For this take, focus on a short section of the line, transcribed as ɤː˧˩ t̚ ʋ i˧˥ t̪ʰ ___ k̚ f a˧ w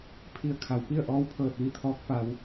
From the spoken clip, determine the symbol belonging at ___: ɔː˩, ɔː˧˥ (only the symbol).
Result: ɔː˧˥